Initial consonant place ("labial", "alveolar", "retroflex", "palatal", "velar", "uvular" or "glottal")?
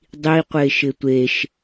alveolar